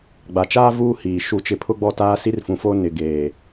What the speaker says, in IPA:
ɡ͡b a˨ t͡ʃ aː˦ v uː˦ h iː˨ ʃ u˦˨ t͡ʃ ɪ˦ pʰ ʊ˦ ɡ͡b ɔ˦˨ t aː˦ s i˦ r f ũ˨ f o˦ n ɪ˨ ɡ eː˨

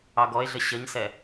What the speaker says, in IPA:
ɑ ɡ ɔ e̯ ɮ ə ɕ ə ɲ s ɛ

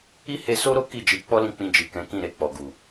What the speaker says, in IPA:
i˦ h e˧ s o˦ ɾ o˦ k i˦˨ d͡ʒ i˨˦ k͡p ɔ˦ l ĩ˧ k͡p ĩ˧ d͡ʒ i˨ k ɛ̃˨˦ k ĩ˦˨ ɾ e˧ k͡p ɔ˨ ɡ u˨

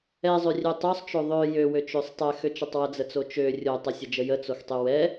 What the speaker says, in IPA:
ɛ zˤ ø rʲ ø tˤ ø sˤ t͡ʃ o ðˤ ø j ø w ø t͡ʃ ø sˤ tˤ ɛ x ø t͡ʃ ɛ tˤ w ə d͡z ə t͡s o t͡ʃ ø rʲ o tˤ ə sʲ ə d͡ʒ ə j ə t͡s o x tˤ ø w ɛ

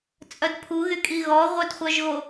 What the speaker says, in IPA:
t͡sʼ œ d pʰ u ɣ y kʼ i ɣ ɔ ʁʷ œ d χʷ œ ʒ ɣ o

